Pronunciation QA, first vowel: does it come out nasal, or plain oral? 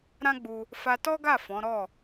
nasal